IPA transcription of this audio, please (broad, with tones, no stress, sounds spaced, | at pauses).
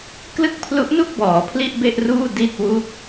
k l ɯ˥˩ k̚ pʰ l u˦˥ ʔ n u˥˩ k̚ b ɔː˩˦ pʰ l i˥˩ ʔ b e˥˩ ʔ r uː˥˩ d i˥˩ t̚ w u˥˩ k̚